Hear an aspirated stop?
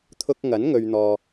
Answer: yes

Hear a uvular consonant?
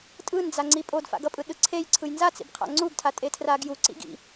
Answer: yes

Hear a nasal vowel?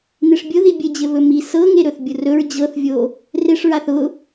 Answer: no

